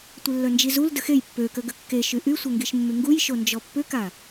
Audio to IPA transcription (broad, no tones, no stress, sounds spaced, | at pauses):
tʷ ɪ lː œ n d͡ʒ i z u l d ə x e j pː ø k ə ɡ ə kː e ʃ y ʔ y sʷ ə ŋ ɡ i ʃ mː y ŋ ɡ u j ʃ o n d͡ʒ ɔ pː ʏ k a